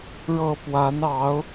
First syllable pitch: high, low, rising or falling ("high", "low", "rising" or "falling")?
low